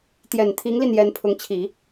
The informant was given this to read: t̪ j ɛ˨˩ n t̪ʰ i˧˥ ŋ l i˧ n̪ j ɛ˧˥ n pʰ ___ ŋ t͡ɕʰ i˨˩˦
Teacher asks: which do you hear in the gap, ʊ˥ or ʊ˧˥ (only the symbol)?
ʊ˧˥